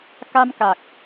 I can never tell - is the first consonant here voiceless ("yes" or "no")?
yes